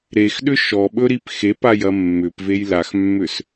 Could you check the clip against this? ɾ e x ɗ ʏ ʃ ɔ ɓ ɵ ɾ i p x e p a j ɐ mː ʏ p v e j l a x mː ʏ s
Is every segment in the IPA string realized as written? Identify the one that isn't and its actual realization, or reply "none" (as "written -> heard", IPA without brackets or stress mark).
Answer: none